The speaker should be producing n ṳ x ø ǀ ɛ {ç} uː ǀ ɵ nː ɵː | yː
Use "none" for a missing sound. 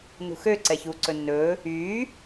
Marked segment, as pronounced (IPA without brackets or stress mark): ç